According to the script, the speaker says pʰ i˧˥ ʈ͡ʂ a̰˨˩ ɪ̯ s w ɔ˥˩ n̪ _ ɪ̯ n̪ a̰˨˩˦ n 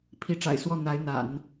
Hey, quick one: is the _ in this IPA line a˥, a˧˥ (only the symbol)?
a˧˥